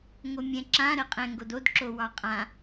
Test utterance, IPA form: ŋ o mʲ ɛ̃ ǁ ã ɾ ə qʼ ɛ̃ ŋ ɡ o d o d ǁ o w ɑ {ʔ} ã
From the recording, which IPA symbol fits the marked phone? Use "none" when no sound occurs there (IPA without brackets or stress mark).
qʼ